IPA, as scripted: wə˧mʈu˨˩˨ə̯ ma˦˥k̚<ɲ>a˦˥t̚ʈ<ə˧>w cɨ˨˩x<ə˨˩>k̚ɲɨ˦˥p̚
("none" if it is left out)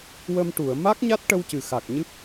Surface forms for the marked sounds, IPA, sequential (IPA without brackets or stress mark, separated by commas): ɲ, ə˧, a˨˩